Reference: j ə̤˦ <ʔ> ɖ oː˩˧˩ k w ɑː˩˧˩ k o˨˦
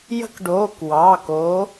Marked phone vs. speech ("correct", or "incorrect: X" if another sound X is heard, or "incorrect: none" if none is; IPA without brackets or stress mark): incorrect: k